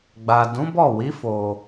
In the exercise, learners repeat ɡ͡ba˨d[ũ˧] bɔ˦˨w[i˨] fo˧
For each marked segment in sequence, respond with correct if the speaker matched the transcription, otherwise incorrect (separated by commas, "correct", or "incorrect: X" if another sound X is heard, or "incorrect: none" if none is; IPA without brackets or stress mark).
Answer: incorrect: ũ˨˦, incorrect: i˨˦